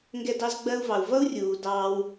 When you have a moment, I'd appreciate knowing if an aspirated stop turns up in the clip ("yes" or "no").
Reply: no